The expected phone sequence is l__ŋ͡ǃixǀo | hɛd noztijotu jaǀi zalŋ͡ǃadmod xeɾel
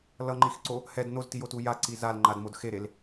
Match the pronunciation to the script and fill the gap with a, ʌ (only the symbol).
ʌ